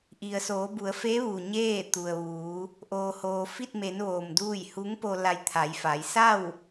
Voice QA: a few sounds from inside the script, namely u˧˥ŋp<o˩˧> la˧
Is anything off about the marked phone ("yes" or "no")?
yes